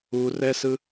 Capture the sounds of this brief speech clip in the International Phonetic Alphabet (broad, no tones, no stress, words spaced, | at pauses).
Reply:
urɛsɯ